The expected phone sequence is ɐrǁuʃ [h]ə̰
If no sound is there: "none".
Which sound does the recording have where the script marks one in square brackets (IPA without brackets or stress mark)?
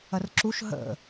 ɦ